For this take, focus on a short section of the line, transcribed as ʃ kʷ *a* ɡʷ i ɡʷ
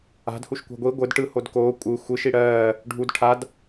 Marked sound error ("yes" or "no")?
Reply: yes